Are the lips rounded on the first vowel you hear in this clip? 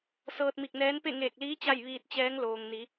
no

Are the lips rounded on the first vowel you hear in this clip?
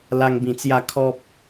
no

